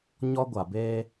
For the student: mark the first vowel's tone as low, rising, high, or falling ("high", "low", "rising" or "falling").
high